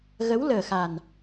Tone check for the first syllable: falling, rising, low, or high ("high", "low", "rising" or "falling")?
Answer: rising